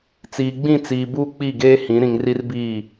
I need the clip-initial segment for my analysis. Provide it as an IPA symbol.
t͡s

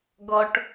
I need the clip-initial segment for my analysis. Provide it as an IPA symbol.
ɡ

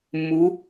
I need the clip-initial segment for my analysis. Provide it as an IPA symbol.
mː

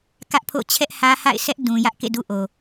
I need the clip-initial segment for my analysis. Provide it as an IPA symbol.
k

